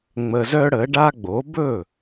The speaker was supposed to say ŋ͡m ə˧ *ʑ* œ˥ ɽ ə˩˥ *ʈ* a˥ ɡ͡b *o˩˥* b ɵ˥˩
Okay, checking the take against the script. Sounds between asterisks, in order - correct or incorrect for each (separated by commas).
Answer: incorrect, incorrect, correct